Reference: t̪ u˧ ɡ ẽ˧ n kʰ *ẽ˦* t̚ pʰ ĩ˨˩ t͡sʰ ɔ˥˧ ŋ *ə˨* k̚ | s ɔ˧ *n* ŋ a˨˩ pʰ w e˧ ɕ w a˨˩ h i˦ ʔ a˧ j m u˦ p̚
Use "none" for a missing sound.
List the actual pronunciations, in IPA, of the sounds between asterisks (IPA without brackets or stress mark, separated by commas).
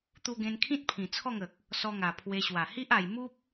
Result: ĩ˦, ə˨, none